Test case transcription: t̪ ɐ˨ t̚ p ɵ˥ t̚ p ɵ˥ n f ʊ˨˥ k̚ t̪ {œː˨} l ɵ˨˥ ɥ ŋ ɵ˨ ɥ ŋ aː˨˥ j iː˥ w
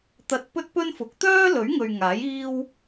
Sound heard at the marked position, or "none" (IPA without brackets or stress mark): œː˥